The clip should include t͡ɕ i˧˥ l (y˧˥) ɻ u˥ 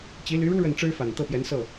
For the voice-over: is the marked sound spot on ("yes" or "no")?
yes